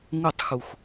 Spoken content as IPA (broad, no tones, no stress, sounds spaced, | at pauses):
ŋ u tˤ x u x